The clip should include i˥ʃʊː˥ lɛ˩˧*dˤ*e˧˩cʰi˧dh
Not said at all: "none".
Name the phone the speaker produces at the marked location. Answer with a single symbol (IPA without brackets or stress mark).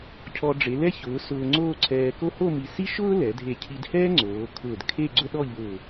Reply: dʱ